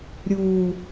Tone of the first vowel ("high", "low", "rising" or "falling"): low